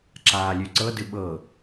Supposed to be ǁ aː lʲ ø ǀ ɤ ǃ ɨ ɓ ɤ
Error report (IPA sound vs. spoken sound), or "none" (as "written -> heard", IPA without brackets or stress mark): ǃ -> d